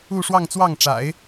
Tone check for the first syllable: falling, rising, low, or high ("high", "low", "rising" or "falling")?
falling